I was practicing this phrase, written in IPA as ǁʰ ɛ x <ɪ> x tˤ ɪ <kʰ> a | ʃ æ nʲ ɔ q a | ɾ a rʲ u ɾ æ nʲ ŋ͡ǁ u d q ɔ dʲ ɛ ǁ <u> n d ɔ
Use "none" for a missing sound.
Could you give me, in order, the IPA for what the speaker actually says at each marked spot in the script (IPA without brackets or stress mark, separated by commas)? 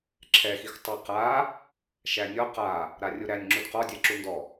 i, q, u